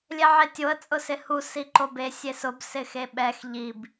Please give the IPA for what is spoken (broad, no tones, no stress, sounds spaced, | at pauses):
lʲ ɛ ʕ e tʲ o ə̯ t͡sʼ ʊ s ɪ h u s i ǃ o b e sʲ e s ʊ b s ɪ x e ɓ ɛ x ʎ i b